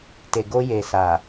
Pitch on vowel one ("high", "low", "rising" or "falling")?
low